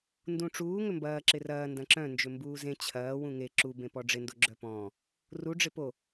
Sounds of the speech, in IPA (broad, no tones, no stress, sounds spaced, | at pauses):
n d ũ ʈ͡ʂ uː ŋ ʏ m b ɐː ǁ ɪ r ɐː n d ɐ̃ ǁ œ̃ n d͡ʒ ʏ m b uː z ẽ t͡ɕʰ ɐː w ũ ŋ e ǁ u b ẽ p ɔ ɖ͡ʐ ɪ n d o ɡ͡ǁ œ p ɔ̃ː | r u ɖ͡ʐ ɪ p o